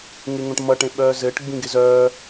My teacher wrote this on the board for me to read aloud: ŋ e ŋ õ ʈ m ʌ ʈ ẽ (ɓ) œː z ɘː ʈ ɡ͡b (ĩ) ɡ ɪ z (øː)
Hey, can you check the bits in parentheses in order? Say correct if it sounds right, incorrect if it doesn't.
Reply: correct, correct, incorrect

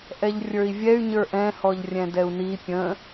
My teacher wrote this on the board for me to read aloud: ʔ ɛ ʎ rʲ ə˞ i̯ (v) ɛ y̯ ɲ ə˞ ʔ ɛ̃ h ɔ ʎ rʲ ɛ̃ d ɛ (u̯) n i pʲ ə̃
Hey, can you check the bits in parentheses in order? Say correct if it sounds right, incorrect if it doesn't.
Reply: incorrect, correct

